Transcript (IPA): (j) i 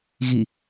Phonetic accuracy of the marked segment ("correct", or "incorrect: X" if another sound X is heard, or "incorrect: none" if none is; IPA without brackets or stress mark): incorrect: ɣ